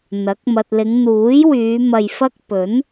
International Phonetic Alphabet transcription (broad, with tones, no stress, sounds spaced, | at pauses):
n̪ ɐ˨˥ k̚ m ɐ˨ t̚ l ɪ˨˧ ŋ n̪ uː˨˥ j w yː˨˧ m ɐ˧ j f ɐ˥ k̚ p ɵ˨˥ n